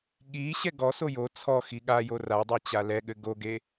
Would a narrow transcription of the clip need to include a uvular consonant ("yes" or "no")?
no